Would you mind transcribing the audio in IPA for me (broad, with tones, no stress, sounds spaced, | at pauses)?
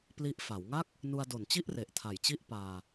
p l i˦˥ ʔ f a˩˦ w ŋ a˥˩ k̚ | n u˧ a̯ d o˨˩ n t͡ɕ i˥˩ ʔ r e˨˩ ʔ tʰ a˨˩ j t͡ɕ i˥˩ ʔ p aː˧